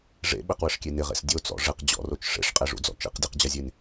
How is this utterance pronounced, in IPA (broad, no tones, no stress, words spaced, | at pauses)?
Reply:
ʐḛ ɓɪqwɪʂkʲe nɪʁḛs dʲot͡sɔ̰ ʐɪq d͡ʑɔ̰rot͡ʃ ʂḛʂqʼeʐṵd͡zɔ̰ t͡ʃḛqdʲeqd͡ʑɐzʲen